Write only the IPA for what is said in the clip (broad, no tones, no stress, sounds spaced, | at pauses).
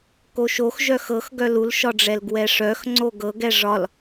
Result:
k o ʃ o x ʒ œ x ɤ x ɡ œ l u l ʃ ɒ ɖ͡ʐ ɛ l ɡ w ɛ ʂ œ x ŋ͡ǀ o ɡ ɤ ɡ ɛ ʐ ɒ l